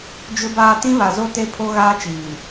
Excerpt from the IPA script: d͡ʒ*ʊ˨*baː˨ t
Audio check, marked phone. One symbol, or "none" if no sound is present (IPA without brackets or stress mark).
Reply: ʊ˨